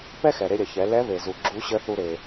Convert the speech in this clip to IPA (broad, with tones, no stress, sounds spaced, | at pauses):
p ɛ˥ x ɛ˩ ɾ e˧ ɾʲ ɐ˩ ç ɛ˩˧ l ɛ˧˥ β e˩ z u˩ ɡ͡ǁ u˧˥ ɕ ə˧˥ θ u˧ ɾ e˩